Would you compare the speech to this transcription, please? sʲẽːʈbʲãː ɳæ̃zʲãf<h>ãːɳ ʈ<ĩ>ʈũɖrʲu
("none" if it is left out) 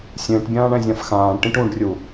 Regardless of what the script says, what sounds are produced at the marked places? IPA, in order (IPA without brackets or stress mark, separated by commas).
x, ĩ